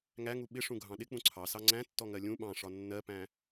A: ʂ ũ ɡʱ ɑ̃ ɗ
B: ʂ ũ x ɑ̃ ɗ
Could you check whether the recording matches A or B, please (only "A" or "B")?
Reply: A